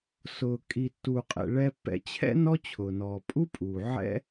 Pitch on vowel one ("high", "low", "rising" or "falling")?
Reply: low